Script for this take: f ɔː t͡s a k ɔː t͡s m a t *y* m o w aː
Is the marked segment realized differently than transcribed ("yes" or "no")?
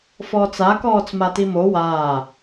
yes